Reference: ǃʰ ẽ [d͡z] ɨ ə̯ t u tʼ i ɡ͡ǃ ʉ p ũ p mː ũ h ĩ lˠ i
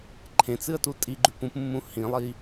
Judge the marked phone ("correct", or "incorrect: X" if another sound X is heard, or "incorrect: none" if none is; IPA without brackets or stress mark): incorrect: t͡s